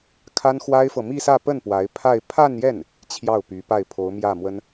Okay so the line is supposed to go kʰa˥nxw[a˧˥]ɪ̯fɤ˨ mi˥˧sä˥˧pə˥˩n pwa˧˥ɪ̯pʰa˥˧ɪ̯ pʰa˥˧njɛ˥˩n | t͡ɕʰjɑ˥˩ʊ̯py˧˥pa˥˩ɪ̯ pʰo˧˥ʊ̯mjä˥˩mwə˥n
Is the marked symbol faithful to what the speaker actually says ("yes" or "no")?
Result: no